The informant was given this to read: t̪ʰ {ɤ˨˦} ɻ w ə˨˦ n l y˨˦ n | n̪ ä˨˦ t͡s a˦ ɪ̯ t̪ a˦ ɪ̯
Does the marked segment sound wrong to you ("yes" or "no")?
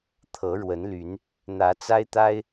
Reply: no